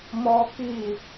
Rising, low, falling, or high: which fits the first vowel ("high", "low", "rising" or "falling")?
high